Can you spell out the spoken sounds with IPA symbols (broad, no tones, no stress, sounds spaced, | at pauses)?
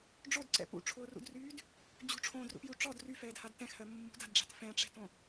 ɖ͡ʐ o d ǀ ɛ̰ p ṵ ʈ͡ʂʰ ʊː r ṵ d r yː d | d͡ʑ ṳ ʈ͡ʂʰ õː d r ṵ p j u ʈ͡ʂ ɔ d r y f ɛː d h a d t ɛ̃ x h ɜ mː ṳ d a̤ d ɖ͡ʐ a̤ t f ɛ̃ ʈ͡ʂ ɛ̤ t õ